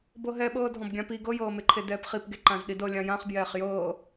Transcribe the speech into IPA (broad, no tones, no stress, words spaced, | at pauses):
bɤɦɛɓɤː dʱɔ̃bɡʲãpi ɡɤjɤːmeǃʰe dɛːpχipɡe ǃãzɗidɤ lʲãjãχ bjɛːχjɤː